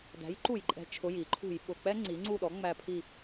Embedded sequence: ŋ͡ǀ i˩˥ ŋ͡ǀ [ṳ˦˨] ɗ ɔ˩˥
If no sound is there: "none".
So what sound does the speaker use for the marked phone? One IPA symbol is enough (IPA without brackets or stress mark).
u˦˨